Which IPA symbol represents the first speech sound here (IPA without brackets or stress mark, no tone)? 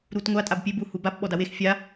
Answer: ɾ